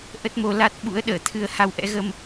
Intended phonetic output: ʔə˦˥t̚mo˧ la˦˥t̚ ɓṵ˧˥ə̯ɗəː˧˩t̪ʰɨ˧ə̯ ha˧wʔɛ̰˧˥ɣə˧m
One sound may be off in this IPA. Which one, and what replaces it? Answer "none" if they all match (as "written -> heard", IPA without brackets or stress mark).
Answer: none